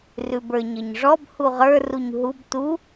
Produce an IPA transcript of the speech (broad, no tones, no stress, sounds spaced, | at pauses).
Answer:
r ʉ b ə˞ ɲ ʌ ɲ ʐ ɔ b h u ʁ ə˞ r u ɲ ɦ u b t u